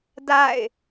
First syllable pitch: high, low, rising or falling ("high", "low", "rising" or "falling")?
falling